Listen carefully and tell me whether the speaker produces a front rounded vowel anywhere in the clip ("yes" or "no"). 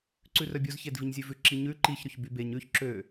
yes